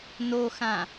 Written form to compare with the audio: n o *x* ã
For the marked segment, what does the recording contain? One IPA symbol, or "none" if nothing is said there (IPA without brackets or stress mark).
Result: x